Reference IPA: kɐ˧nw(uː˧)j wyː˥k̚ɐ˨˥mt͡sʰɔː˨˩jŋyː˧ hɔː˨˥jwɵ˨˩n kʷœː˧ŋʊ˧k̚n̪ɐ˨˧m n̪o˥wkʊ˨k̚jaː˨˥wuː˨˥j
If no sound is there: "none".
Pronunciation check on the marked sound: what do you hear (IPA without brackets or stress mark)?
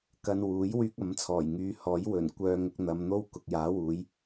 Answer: uː˨˥